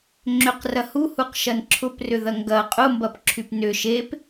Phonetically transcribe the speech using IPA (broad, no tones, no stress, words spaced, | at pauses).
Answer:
ŋ͡ǁʏqrɐ huhuqʃɐn ǁʰʊprʏðɐ ŋɡɐ qʼʊmbɐpǁʰyp nʏ ʃep